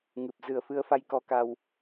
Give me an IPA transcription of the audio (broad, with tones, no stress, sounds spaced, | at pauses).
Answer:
ŋ ɨ˨˩ p̚ z ɨ˨˩ ə̯ f ɨ˧ ə̯ f a˧ j k ɔ˧ k a˧ w